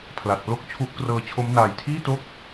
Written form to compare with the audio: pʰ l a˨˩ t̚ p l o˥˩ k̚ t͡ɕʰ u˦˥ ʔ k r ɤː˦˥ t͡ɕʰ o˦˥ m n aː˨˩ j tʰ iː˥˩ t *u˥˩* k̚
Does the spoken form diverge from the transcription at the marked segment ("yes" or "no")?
yes